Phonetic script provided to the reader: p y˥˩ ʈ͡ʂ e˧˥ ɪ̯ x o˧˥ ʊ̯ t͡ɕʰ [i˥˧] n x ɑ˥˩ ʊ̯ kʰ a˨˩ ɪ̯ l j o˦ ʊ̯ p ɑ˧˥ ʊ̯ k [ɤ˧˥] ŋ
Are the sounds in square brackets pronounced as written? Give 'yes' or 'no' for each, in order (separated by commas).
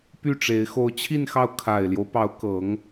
yes, yes